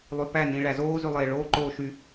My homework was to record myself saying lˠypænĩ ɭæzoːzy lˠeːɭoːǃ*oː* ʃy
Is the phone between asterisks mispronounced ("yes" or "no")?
no